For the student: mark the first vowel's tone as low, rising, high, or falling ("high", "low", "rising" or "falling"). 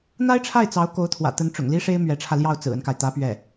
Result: high